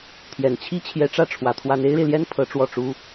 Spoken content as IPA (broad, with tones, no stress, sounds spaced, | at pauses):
t̪ʰ j ɛ˨˩ n t͡ɕʰ i˥ t͡ɕʰ j ɛ˧˥ ʈ͡ʂ ä˥˩ ʈ͡ʂʰ w ä˧˥ t̪ʰ w a˥ n e˥ ɪ̯ ɻ e˨ ɪ̯ l j ɛ˥ n pʰ ɤ˧˥ ʈ͡ʂ w ɔ˥˩ ʈ͡ʂ u˥